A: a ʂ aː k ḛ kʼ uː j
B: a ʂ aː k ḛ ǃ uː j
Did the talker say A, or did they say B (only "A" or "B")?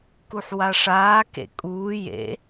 A